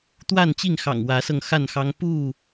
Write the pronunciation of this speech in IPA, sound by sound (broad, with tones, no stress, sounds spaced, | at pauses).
t̪ w a˥˨ n t͡ɕ i˥˨ ŋ x ɑ̰˨˩ ŋ w ä˨˦ s ɤ˧ ŋ x a˥˨ n x ɑ˦ ŋ p u˥˨